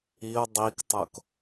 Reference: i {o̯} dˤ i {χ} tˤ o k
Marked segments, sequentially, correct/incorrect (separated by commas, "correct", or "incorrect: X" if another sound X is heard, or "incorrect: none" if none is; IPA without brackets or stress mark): correct, incorrect: k